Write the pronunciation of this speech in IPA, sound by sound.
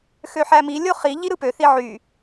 x ø ħ æ m i lʲ o χ i ʎ i ɾ ɯ p ø θ i ʕ y

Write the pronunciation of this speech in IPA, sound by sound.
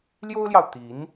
l j o˥ ʊ̯ l j ɑ˨ ʊ̯ t̪ i˧˥ n

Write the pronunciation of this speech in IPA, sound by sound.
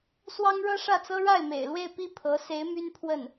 s w ɑ˥ ŋ ɻ ɤ˥ ʂ ä˥˩ t͡s ɤ˥ ɻ a˥˩ ɪ̯ m ḛ˨˩ ɪ̯ l w e˥˧ ɪ̯ p i˥˩ pʰ ɤ˧˥ s e˧˥ ɪ̯ m y˥ n pʰ w ə˥˩ n

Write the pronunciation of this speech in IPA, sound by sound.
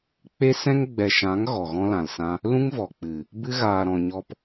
k͡p e˦ s ɛ̃˦ ŋ ɡ͡b ɛ˨ ʃ ã˨˦ ŋ ɣ ɔ˨ ɣ ɔ̃˦ l ã˨ l s ã˦ | l ũ˦ ŋ v ɔ˨ k͡p ɨ˨ | b ɨ˦ ɣ aː˨ ɾ ɔ̃˨ ɲ ɔ˧ p

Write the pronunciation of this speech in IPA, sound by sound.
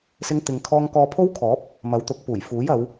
s ɪ˥ ŋ t̪ ɪ˧ ŋ kʰ ɔː˥ ŋ k ɔː˧ pʰ o˥ w kʰ ɔː˨˥ p̚ | m ɐ˨˥ w t̪ ʊ˨˥ k̚ p uː˨˩ j f uː˨˥ j ɐ˨˧ w

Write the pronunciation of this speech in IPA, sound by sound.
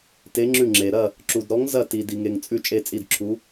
t e˧˥ ŋ͡ǁ ʉ˦˨ ŋ͡ǁ e˨ ɾ ɐ˦˨ | ǁ u˨ d ɾ ɔ˧˥ ŋ z ɐ˦˨ t i˨ d i˨ ŋ e˨ ŋ t͡sʼ ʉ˦˨ t͡ʃʼ e˦˨ t͡sʼ i˦˨ d ǁʰ u˧˥

